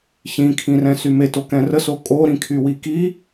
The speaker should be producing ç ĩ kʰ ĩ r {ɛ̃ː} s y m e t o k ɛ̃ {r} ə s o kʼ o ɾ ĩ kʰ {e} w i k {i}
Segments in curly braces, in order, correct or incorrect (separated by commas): incorrect, correct, incorrect, correct